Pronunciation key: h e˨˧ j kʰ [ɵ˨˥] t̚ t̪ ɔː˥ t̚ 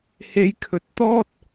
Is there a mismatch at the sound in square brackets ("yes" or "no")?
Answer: no